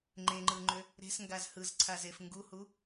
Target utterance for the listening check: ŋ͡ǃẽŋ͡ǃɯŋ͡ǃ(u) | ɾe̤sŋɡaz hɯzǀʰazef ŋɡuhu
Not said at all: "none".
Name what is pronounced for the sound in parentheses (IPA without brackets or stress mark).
ø